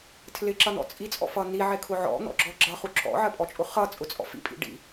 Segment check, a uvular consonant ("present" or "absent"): present